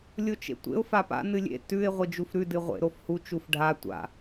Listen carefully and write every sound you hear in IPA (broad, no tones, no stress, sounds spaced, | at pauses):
lʲ o t͡ʃ ḛ tʷ ḛ ʊ̯ f a p a̰ n ɨ lʲ ḛ t ʉ ɪ̯ ʁʷ i d͡ʒ u f ɾ ʉ d ɨ ʁʷ ḛ ɾ o f h u t͡ʃ u f ɖʱ a tʷ a̰